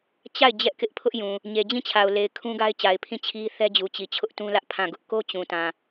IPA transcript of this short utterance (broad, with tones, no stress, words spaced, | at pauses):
t͡ɕa˦˨ɪ̯ d͡ʑɛ˦ʔkɪ˦ʔpʰʊ˦ʔjũ˨ | ɲe˨d͡ʑĩ˦˨t͡ɕʰa˨ʊ̯le˨ɪ̯ kʰũ˦ɡa˦ɪ̯t͡ɕa˨ɪ̯ pʰĩ˦˨t͡ɕʰi˦ θɛ˦d͡ʑu˨t͡ɕi˨ t͡ɕʰʊ˦ʔtũ˦lä˦ʔ pʰã˦˨ɡʊ˦ʔ ko˦t͡ɕũ˨tã˨